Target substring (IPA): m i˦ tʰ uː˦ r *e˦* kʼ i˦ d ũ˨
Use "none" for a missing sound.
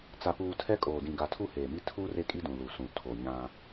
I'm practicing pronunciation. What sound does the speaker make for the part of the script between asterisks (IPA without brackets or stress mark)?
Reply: e˦